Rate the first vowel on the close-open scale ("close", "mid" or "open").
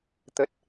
mid